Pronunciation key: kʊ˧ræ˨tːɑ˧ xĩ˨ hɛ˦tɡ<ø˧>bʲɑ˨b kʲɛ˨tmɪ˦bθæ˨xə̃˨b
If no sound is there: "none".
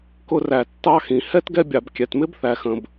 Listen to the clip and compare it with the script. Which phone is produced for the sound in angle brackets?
ɛ˧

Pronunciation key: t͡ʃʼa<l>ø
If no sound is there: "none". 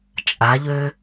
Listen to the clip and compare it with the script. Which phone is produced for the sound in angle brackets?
ʎ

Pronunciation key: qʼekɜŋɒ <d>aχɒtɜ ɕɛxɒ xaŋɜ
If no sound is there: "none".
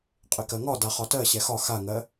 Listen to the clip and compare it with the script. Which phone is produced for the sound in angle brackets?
d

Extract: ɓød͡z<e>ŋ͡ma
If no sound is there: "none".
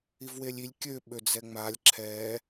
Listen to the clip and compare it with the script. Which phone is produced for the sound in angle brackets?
ɛ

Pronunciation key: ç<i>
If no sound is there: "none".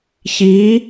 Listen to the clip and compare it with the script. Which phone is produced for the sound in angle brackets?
i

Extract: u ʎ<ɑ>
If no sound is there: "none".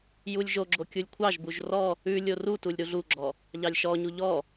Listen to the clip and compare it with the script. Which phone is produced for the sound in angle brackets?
ɔ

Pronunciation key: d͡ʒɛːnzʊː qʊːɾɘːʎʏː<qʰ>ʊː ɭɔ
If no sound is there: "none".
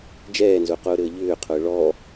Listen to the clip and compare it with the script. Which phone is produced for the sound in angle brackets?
qʰ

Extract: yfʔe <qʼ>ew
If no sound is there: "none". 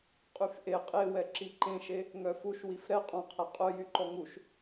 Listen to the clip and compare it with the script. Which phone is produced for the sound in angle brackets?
qʼ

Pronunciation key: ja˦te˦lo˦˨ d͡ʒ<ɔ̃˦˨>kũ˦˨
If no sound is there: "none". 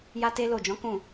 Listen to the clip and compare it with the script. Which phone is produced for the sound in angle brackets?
ɔ̃˨˦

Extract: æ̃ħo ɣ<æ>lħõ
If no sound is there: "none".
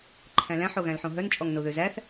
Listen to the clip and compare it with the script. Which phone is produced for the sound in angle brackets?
æ̃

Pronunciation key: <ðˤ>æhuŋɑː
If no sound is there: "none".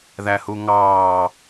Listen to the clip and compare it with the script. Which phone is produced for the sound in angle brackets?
ð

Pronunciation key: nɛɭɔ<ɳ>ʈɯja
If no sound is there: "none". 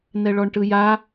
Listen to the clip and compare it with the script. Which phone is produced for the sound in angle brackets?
ɳ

